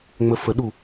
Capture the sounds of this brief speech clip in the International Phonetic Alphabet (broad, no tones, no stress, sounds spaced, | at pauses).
ŋ͡m ə f ə ɗ u